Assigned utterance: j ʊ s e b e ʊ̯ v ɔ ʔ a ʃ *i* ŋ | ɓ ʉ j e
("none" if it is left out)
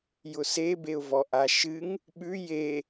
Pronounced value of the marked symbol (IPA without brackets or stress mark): ɨ